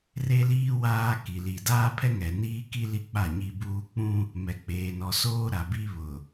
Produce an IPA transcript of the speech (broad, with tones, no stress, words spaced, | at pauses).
re˦liː˦ waː˦ ki˨ li˨ daː˦pʰɛ˦ ŋɛ˨niː˦ki˦ li˦k͡pa˦˨ɲi˦buː˦ k͡pũ˦ | mɛ˨k͡peː˨nɔ˨soː˦ ɾa˨bi˦βʊ˨